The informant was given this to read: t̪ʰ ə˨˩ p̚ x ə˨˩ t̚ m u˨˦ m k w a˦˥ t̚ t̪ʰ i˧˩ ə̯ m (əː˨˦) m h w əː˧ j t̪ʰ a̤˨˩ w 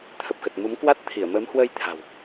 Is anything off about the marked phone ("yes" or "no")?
no